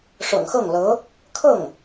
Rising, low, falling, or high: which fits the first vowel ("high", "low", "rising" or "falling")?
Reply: low